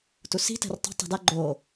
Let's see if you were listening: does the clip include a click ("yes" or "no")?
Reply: yes